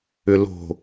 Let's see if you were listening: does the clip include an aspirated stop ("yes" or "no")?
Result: no